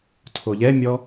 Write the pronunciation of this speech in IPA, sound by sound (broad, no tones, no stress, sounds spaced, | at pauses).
tʰ o ʎ ɛ mʲ ɔ